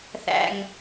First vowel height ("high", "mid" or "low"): low